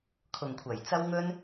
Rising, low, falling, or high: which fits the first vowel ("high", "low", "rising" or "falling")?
low